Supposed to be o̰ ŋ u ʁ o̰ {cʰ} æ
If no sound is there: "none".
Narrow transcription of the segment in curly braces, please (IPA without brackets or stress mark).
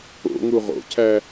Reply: cʰ